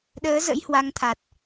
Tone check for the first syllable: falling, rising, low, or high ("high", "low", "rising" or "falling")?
rising